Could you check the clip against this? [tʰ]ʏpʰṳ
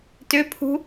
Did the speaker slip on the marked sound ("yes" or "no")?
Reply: yes